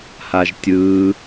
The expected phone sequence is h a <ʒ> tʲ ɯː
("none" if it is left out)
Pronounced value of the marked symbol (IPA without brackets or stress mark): ʒ